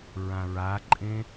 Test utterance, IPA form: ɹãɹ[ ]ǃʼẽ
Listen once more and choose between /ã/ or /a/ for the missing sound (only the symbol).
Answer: a